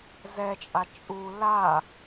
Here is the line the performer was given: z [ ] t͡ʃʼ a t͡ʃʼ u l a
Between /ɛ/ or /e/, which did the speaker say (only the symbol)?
ɛ